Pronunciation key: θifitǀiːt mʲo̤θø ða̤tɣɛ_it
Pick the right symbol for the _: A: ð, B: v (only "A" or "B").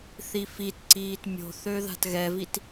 B